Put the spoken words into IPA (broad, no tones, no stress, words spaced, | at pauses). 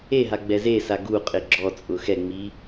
eɦaɡ͡bɛ zesa ɡuqʼɪ ɡ͡ǁɔt͡sʼʊ xɛŋ͡mi